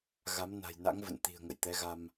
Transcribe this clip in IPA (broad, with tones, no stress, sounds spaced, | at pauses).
ɣ a˨˦ m n a̤˨˩ j n a̰˧˥ ŋ v ə̰˧˨ n t̪ i̤˨˩ ə̯ ŋ ə̰˧˨ j t̪ ɛ˨˦ ɣ a˧ m